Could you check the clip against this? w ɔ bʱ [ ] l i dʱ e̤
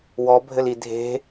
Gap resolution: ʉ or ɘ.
ɘ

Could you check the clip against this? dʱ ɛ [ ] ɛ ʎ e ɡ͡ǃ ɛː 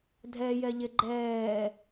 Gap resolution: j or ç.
j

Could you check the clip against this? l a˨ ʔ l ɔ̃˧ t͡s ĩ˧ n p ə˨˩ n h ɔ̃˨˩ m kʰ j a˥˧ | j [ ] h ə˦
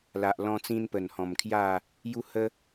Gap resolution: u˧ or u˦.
u˦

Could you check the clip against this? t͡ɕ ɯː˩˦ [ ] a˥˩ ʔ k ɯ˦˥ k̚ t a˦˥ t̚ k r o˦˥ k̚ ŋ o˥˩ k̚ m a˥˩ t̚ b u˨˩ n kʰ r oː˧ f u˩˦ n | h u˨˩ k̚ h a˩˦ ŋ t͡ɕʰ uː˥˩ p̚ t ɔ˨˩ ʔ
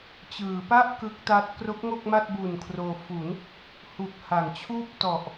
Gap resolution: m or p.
p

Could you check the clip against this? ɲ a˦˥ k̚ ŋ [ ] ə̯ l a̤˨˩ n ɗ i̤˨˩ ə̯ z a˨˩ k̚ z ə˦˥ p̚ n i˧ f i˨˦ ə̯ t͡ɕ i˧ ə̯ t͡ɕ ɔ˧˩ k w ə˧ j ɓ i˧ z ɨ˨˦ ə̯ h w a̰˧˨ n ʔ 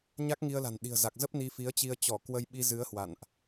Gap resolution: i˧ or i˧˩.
i˧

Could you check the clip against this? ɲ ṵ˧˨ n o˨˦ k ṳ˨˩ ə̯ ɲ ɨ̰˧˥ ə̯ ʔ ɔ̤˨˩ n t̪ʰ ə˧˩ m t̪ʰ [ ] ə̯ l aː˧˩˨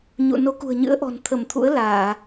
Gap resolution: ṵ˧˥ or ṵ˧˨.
ṵ˧˥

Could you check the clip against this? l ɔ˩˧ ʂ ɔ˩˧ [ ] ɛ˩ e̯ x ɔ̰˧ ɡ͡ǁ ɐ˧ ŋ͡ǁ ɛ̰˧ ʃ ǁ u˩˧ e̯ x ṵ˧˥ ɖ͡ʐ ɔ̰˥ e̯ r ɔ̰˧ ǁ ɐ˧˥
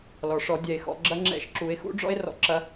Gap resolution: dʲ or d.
dʲ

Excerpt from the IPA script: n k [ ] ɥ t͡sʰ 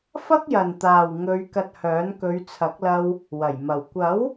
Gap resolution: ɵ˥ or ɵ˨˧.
ɵ˨˧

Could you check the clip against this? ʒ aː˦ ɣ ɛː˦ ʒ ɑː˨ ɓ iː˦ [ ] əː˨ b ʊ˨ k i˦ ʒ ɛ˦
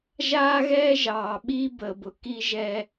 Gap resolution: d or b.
b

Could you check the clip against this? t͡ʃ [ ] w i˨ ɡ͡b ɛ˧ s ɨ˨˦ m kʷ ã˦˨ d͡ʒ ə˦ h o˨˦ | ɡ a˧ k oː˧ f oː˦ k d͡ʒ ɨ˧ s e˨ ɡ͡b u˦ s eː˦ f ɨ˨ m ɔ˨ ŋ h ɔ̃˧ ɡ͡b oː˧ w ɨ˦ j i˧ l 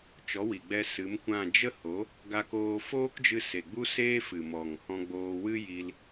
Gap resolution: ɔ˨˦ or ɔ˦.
ɔ˨˦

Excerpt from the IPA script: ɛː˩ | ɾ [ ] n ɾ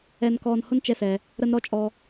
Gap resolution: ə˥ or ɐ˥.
ə˥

